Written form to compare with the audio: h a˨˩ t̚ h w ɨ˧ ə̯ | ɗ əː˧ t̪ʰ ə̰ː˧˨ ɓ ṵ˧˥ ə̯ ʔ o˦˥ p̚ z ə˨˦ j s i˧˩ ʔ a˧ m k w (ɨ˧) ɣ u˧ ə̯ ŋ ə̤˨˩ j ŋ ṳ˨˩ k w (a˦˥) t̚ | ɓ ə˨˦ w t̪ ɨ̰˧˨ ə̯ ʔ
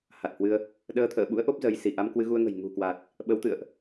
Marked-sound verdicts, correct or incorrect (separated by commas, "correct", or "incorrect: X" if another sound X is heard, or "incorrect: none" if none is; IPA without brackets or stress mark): correct, incorrect: a˨˩